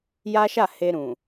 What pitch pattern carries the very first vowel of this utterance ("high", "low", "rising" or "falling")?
high